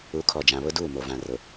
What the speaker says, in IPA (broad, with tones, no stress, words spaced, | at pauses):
u˨˦kʰɔ˨d͡ʒã˨ βʊ˦duː˦˨mo˨ vã˨rʊ˨